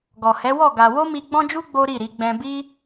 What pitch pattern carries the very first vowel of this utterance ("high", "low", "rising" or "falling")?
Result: low